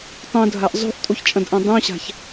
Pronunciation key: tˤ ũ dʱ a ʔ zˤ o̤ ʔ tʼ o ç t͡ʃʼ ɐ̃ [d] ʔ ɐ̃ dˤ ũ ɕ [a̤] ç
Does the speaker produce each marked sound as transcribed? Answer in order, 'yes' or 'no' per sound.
yes, yes

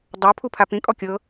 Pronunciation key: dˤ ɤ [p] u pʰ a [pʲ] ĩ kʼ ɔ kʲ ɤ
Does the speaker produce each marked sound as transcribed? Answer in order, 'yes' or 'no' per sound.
no, no

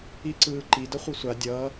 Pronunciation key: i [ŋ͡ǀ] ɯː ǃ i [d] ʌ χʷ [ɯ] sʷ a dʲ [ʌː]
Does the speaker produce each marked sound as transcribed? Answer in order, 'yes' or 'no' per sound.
no, yes, yes, yes

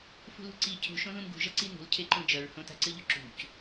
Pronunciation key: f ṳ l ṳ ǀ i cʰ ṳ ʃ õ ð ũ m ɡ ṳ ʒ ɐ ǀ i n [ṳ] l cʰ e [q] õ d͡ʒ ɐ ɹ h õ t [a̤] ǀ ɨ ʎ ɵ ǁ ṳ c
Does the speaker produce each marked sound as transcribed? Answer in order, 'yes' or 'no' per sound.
yes, no, yes

